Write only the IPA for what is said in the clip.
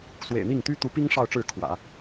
swḛ˨˩ɪ̯n̪i˥˩ŋt̪y˥ t̪u˧˥pi˥ŋ ʂɑ˥˧ʊ̯ʈ͡ʂɻ̩˥˩ kʰwä̰˨˩˦

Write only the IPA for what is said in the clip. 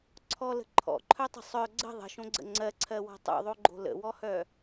ǀʰɔlə̤ ǃʰɔ̰ǃʰœtˤə̤ sˤœ ɡ͡ǀə̤ ðˤə̤ʃõɡ͡ǀə̰ ŋ͡ǀɜǀʰɜwɔ̤ tˤo̰ðˤoɡ͡ǃo̤ lə̰wɔhœ

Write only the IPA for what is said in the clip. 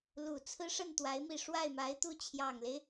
lu˨˩ t͡sʰɹ̩˥ʂə˥˩nt̪wa˧˥ɪ̯ mi˥˧ ʂwa˥˩ɪ̯ma˧˥ɪ̯t̪u˥˩ t͡ɕʰjɑ˨˩ŋle˦ɪ̯

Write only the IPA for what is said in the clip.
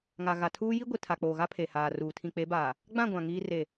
ŋa˨ɣa˨tʰuː˦ ji˦ɡʷi˨ tʰa˨k͡poː˨ɣa˦ pʰe˨haː˨ruː˨ tʰĩ˨k͡pe˨˦baː˨ | ɡ͡bã˦˨ɡʷã˨ ŋiː˦ re˦˨

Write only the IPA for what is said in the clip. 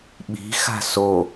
ɓi̤xa̤ so

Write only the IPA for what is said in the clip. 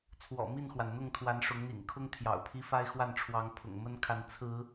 t͡sʰwɔ̰˨˩ mi˥˨nxwa˩nn̪ʊ˥˨ŋt̪ʰwa˨˦n ʂʊ˨˦ŋn̪ḭ˨˩ŋkʰʊ˦ŋ t̪ʰjɑ̰˨˩ʊ̯pʰi˦fa˦ɪ̯xwa˥˨n ʈ͡ʂʰwɑ˨˦ŋpʰʊ̰˨˩ŋmə˦nkʰa˨˦n t͡sʰɹ̩˨˦

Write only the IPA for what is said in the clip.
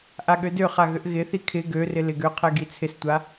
ʔaɠødøχa ɣʏʔɣɪθi kʰɪ ɡørɪ lɪɡøqʰɛ ɡit͡sʰɪstʷa

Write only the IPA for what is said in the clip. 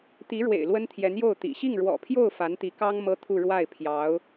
t̪i˧˥ɻwḛ˨˩ɪ̯ lwə˥nt̪ʰjɛ˧˥njo˥˩ʊ̯ t̪ḭ˨˩ ɕi˥˩ŋɻwɔ̰˨˩pʰjo˥˩ʊ̯ fa˧˥nt̪i˧˥kɑ˥ŋ mɤ˥t̪ʰu˥˧ ɻwa˥˩ɪ̯pʰjɑ˧˥ʊ̯

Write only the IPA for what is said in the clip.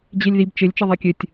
d͡ʑelʲðib t͡ʃɘlʲ t͡ʃɘðˤekʲɘtʲ

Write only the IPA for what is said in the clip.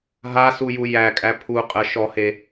ɦasuju jækʼæ pʰuqʼə ʃɔhe

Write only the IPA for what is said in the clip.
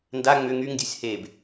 nda ŋ͡mʏ ŋyŋdʲosʲ heb

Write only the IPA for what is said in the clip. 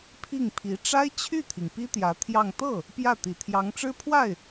pʰi˥˩ŋpʰi˧˥ ʈ͡ʂa˥ɪ̯t͡ɕʰy˥˩t̪ʰi˩ŋ pi˥ t̪jä˧˥t̪ʰjɑ˥˧ŋ t̪ɤ˥˩ | pjä˥˩t̪i˨˩t̪ʰjɑ˧˥ŋʈ͡ʂɻ̩˥ pʰwa˥˩ɪ̯

